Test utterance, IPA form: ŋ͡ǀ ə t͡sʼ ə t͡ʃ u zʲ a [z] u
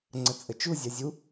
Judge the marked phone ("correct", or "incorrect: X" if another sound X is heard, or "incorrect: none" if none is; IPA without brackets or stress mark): incorrect: zʲ